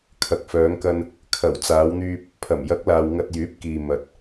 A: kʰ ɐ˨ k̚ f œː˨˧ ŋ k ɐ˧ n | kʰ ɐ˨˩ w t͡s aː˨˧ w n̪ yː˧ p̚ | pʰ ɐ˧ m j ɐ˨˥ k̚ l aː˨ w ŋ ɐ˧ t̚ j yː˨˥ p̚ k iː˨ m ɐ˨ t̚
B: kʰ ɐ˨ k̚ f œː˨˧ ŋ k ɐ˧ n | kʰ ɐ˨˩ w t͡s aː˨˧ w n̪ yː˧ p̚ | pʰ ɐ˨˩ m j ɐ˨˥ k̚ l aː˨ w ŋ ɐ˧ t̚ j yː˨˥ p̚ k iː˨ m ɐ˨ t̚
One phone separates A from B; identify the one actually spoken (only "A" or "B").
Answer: B